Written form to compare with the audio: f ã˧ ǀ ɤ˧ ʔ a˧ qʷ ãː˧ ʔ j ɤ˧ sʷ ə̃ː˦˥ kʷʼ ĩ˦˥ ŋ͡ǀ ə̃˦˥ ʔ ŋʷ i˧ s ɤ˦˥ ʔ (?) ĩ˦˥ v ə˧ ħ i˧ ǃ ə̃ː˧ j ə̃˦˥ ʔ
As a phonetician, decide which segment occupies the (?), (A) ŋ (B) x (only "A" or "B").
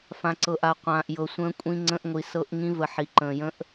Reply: A